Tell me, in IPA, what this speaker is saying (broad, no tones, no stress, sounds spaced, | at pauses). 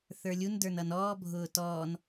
θ ə˞ lʲ u n d ə˞ n ʌ n ɔː bʱ ʊː t ɔː n